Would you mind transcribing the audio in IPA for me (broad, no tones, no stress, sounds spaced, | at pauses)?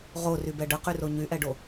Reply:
ʁ o r y b ɛ ɖ ə q y r o ɲ y ʔ ɛ ɖ o